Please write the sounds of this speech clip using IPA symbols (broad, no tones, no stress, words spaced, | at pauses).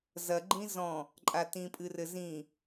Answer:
zɐɡ͡ǃĩ zɔ̃ | ǃʼatĩpʼɨrɘ zĩ